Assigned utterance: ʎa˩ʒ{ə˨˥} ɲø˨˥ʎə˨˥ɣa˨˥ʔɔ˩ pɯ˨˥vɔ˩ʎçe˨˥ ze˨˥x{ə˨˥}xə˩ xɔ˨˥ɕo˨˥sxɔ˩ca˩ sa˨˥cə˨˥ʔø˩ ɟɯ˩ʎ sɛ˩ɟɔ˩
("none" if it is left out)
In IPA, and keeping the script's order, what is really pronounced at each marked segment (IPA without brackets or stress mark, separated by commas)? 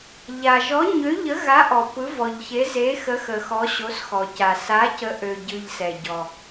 ɔ˨˥, ə˨˥